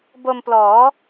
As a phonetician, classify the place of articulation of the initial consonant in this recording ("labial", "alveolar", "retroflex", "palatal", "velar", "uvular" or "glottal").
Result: labial